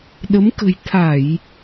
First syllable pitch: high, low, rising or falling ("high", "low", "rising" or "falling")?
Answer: rising